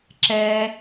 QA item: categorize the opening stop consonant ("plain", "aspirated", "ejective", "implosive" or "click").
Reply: click